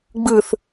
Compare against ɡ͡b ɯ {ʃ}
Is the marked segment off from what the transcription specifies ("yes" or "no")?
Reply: yes